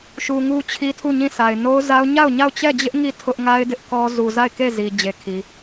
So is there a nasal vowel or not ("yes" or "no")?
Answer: yes